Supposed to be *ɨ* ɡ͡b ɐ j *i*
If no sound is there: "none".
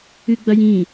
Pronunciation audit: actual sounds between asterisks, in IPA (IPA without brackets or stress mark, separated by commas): ɨ, ĩ